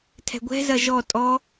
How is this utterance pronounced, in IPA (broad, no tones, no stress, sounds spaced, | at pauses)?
tʰ ɛ̤ ɡʷ ɛ̤ z ɐ ʒ ɔ tʼ ɔ